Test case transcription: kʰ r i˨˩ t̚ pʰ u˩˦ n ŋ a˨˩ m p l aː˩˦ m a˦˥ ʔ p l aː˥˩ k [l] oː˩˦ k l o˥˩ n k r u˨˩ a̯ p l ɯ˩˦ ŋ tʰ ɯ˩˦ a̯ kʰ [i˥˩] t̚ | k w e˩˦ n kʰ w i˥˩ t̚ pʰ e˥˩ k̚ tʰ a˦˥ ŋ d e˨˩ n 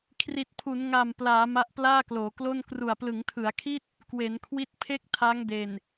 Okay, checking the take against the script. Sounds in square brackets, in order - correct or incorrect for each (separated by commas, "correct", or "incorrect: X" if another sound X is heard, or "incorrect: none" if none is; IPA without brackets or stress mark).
correct, correct